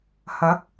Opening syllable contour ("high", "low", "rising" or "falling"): rising